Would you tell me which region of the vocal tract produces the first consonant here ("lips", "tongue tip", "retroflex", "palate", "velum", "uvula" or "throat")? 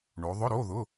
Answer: retroflex